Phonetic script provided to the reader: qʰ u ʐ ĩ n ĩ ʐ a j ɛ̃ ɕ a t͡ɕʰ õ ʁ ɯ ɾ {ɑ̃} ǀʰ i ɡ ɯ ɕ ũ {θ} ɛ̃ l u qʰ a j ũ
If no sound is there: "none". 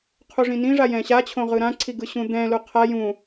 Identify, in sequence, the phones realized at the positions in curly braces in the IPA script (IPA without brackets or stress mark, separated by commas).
ã, d̪